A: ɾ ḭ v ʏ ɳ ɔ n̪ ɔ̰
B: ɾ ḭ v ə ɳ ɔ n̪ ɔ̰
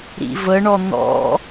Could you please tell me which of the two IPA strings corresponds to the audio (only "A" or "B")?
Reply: B